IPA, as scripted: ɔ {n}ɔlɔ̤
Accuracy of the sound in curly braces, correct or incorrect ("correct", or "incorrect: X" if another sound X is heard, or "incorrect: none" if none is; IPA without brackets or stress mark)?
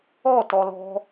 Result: incorrect: t